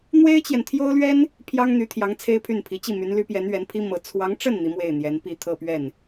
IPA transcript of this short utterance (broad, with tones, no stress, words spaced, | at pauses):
n̪we˥ɪ̯t͡ɕjɛ˨nt̪ʰjo˥ʊ̯lɥɛ˥n | pʰjɑ˥ŋn̪y˧˥t̪ʰjɑ˧˥ŋ t͡sʰe˥ɪ̯pʰy˥˩npʰi˧˥ t͡ɕi˥˩my˧˥nly˧˥pjɛ˧˥n ɥɛ˧˥npʰi˥mɤ˧˥ t͡sʰwɑ˧˥ŋʈ͡ʂə˥˩n n̪i˧˥mwe˥˩ɪ̯n̪jɛ˧˥n pi˥˧t̪ʰɤ˥˧pɥɛ˥˩n